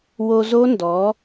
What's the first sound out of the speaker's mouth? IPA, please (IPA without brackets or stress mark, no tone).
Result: w